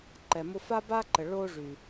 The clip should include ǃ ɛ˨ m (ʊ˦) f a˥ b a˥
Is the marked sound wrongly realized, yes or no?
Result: no